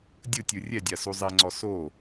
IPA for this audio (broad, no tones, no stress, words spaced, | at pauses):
dʲɯtʲɯ rʲɛdʲa suzˤeŋ͡ǀɔ so